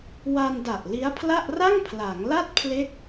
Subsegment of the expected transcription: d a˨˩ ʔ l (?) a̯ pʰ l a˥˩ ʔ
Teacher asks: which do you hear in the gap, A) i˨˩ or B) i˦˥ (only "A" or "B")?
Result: B